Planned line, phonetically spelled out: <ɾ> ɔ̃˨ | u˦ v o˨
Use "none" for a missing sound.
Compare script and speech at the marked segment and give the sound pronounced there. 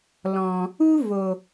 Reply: l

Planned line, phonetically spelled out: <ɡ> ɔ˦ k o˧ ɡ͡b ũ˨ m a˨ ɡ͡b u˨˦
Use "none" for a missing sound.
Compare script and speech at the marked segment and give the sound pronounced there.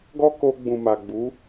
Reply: ɡ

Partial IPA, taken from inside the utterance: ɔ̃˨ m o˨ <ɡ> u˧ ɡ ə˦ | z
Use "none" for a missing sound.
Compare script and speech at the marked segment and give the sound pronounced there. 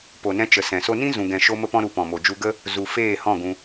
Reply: d͡ʒ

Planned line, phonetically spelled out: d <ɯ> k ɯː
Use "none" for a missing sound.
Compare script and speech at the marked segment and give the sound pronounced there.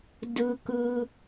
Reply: ɯ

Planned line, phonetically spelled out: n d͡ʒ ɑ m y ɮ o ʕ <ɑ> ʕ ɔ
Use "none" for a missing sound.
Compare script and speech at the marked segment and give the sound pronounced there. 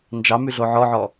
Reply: ɔ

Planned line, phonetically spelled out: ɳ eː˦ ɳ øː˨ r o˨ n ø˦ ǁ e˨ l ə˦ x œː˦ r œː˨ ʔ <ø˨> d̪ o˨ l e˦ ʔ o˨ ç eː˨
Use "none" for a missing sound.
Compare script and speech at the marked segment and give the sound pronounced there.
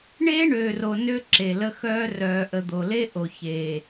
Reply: ə˨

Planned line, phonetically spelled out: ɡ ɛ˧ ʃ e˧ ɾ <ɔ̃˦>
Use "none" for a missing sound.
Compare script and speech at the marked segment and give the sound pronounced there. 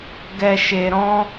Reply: ɔ̃˦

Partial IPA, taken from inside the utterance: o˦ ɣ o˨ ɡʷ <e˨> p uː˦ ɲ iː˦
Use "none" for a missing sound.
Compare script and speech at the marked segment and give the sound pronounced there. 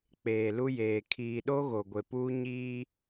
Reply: e˨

